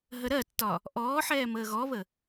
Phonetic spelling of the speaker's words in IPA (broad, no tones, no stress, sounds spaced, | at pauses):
ɦ ə ɾ ɜ tː ɒ | ʔ ɔː ħ ɛː m əː ɣ ɔ β ə